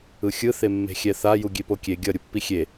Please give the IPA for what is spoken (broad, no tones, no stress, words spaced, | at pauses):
ɯxʲɯ θemːe̤xʲɛθa juɡʲepokʲe ɡʲʌ ɾʲupːixʲe